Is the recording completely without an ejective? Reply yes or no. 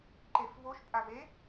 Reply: no